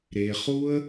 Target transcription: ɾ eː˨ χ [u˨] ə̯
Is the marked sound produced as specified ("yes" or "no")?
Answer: no